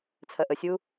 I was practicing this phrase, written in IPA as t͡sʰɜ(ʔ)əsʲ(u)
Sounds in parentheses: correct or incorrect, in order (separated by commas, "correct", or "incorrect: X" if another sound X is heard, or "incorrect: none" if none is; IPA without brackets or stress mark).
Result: correct, correct